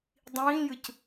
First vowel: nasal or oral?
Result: nasal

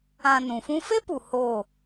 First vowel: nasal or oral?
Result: nasal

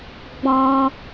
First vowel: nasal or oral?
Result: nasal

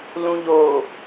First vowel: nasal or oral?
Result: nasal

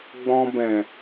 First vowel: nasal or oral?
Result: nasal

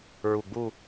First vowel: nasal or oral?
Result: oral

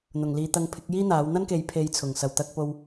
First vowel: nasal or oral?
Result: oral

